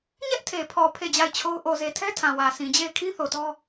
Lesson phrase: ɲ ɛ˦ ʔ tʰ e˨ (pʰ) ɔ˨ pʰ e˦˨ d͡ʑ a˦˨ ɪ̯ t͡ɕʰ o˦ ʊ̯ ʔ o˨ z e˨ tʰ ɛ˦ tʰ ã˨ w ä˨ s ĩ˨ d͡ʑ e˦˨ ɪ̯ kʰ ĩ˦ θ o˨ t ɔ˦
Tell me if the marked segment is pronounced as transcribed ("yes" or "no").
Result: yes